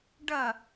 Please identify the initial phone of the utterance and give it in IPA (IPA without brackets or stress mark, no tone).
ɖ